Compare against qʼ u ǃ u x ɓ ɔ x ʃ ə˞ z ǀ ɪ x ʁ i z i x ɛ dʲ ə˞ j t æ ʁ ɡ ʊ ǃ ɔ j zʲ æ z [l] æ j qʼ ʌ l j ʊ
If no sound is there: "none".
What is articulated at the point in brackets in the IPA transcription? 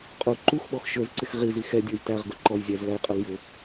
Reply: l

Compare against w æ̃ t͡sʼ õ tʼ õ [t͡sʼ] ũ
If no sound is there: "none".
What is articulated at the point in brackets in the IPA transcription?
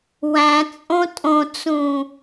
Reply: t͡s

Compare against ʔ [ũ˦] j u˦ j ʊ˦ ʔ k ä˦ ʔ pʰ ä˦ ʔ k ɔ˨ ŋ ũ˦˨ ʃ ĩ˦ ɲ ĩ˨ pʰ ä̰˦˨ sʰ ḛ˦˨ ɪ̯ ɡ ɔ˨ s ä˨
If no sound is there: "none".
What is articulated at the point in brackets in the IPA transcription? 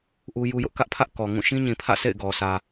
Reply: u˦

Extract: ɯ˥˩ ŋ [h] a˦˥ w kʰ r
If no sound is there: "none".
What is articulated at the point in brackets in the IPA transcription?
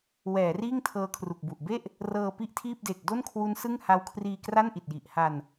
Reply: h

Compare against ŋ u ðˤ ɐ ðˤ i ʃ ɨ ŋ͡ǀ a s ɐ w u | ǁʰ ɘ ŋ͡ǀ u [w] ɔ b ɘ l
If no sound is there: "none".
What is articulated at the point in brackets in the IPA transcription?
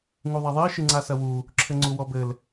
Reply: w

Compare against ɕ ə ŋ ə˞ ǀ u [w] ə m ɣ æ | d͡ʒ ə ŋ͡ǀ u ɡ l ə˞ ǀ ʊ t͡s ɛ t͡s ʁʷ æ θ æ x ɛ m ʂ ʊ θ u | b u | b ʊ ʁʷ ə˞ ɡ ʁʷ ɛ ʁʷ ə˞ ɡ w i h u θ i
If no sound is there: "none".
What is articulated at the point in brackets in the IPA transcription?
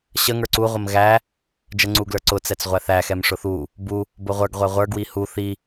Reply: ʁʷ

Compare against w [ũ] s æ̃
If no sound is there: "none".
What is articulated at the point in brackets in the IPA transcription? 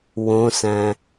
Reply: õ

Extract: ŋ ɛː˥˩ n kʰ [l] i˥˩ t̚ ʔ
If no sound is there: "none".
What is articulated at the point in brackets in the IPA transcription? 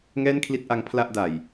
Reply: l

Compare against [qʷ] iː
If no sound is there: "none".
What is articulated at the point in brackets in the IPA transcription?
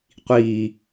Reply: qʷ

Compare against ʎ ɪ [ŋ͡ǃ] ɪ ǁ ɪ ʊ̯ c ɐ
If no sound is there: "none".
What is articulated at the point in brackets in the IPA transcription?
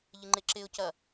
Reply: ŋ͡ǃ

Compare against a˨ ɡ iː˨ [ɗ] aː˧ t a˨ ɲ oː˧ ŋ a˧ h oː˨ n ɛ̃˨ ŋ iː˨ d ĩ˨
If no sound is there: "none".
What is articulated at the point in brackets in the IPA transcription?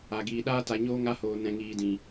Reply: ɗ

